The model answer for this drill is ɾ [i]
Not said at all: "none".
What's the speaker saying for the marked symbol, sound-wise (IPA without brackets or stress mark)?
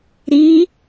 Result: i